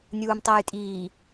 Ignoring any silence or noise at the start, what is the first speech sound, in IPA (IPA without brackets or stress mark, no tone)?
nʲ